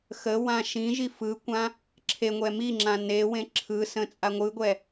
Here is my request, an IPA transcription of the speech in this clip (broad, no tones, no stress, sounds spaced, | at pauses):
x ə w ã ʃ ĩ ʒ i f ɯ kʷ ã | ǁʰ e ŋʷ ɛ m i ŋ͡ǁ ã n e w ẽ ǁʰ ɯ s ə̃ t͡sʼ a ŋʷ ɯ ɡʷ ɛ